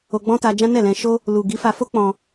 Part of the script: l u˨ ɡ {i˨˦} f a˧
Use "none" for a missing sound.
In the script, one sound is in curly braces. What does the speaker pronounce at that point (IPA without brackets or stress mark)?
i˨˦